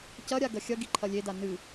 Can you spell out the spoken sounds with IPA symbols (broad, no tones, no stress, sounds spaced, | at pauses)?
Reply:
c ɐ ɾʲ a ɡ ɐ xʲ ɐ ɡ i ǃʰ ɐ lʲ e d a n ɨ